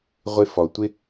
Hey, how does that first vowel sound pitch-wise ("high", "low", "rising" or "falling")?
high